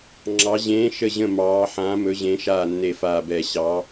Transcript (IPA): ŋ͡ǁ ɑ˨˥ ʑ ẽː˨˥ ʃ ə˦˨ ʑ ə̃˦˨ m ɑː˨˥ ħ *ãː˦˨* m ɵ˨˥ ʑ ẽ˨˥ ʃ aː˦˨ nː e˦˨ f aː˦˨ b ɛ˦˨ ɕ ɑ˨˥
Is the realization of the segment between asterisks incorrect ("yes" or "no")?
yes